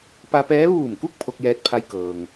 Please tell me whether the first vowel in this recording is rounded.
no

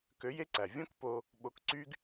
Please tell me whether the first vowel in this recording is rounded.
yes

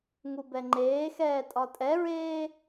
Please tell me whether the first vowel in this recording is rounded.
yes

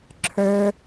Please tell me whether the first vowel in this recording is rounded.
no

